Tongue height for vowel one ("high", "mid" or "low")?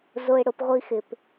high